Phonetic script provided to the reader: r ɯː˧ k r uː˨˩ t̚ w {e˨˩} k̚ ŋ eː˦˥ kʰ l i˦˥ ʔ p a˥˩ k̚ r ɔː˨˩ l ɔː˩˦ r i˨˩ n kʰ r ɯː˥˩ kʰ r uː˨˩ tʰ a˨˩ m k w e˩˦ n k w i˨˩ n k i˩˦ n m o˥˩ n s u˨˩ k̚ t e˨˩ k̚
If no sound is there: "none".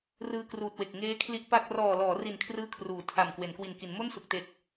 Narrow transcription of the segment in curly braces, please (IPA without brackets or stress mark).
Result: e˨˩